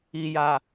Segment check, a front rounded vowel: absent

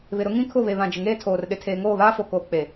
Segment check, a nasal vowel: present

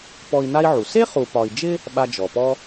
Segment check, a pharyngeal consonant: present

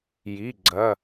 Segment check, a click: present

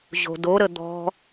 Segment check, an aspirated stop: absent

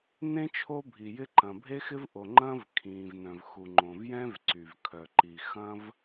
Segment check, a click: present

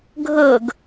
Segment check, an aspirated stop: absent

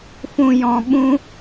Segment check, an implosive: present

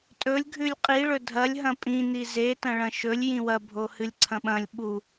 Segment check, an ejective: present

